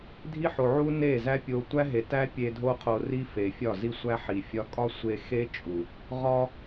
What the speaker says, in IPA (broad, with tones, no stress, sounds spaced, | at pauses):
dʱ i˦ ħ o˨ ʕ u˦ n e˦˨ z æ˦ pʲ o˧ tʷ æ˦ ɦ e˨ t æ˦ pʲ e˧ dʱ o˦ qʰ o˧ r i˦ f e˨ fʲ ɒ˦˨ z i˦ sʷ æ˦ ħ i˨ fʲ ɒ˦ kʼ ɒ˦ sʷ e˧ x e˦ t͡ʃʼ u˨ | ʁ ɒ˧